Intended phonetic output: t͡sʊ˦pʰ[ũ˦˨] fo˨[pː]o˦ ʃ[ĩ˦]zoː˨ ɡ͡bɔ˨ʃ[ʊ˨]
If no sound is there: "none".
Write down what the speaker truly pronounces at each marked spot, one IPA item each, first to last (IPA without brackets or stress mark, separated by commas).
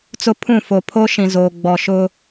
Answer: ũ˦˨, pʰ, ĩ˨, ʊ˦